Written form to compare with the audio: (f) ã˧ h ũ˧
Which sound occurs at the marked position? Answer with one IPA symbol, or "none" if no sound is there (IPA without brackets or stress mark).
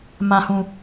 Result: m